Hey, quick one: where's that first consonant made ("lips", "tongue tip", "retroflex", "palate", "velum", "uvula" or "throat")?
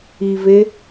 lips